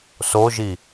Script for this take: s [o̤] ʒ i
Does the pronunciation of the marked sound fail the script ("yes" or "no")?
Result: yes